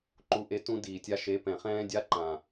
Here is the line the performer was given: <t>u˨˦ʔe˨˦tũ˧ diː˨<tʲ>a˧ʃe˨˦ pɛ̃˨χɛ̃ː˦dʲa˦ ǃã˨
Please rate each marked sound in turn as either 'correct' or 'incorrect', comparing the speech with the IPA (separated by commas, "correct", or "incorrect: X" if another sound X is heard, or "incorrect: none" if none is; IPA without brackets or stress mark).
incorrect: ǃ, correct